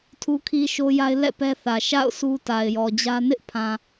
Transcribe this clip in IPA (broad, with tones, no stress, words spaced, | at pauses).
tʰu˦kʰi˦ ʃo˦ja˦ɪ̯ lɛ̰˦˨ pɛ˦θä˨ ʃa̰˦˨ʊ̯ su˦ ta˨ɪ̯jɔ˨d͡ʑä˦ nɪ˦ʔpʰã˨